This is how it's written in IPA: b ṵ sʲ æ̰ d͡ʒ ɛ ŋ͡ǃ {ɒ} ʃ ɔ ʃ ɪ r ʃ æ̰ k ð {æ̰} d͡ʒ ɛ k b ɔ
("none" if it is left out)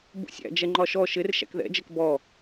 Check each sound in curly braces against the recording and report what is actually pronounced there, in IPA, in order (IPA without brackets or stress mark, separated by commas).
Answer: ɒ, ɛ̰